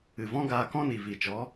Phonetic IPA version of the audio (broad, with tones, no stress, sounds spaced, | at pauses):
ɨ˨ v ɔ̃˦ ɡ aː˧ k ɔ̃˦ n i˨ v i˨ t͡ʃ ɔ˨˦